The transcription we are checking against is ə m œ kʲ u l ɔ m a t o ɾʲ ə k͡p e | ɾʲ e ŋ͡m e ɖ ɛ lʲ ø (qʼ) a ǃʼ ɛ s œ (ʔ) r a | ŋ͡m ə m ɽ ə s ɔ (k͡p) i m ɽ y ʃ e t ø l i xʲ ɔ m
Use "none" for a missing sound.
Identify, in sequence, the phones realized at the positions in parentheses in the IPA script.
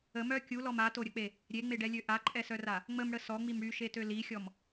ʔ, none, ŋ͡m

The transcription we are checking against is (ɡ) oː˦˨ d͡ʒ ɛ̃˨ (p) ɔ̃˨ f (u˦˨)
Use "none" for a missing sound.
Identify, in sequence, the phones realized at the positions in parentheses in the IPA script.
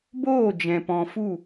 b, p, u˦˨

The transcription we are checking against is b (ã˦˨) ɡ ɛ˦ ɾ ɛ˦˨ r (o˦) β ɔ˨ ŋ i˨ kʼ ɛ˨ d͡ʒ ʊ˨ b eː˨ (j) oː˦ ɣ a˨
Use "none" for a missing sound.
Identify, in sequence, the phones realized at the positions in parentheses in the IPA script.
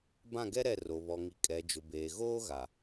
ã˦˨, o˨, ɣ

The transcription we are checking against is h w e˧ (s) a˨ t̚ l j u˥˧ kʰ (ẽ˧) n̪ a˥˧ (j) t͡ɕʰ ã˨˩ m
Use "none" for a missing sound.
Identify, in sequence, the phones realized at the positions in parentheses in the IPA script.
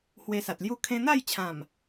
s, ẽ˧, j

